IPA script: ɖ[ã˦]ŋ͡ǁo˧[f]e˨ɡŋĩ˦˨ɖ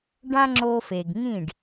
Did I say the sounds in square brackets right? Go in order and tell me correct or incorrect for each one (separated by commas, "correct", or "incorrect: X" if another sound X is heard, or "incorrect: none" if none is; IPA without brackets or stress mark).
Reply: correct, correct